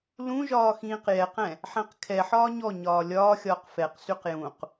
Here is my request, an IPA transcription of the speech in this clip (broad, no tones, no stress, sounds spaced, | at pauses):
l ũ ʒ ɒː x ĩː q j ɛ q ɛ̃ | ħ ɛ̃ q kʰ ɛ ħ ɒː ɲ ɔ ɲ ɒː lʲ ɒː xʲ ɒː q f ɛ q s y q j ũ q